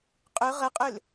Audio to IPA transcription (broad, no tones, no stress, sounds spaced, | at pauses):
qʼ ʏ ʁ ə qʼ ʏ l